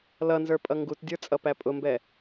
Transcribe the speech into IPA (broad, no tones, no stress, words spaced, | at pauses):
lʌnzə˞ pʼʌŋɡutdʲə˞ t͡sʼʌpæpʼʊmbɛ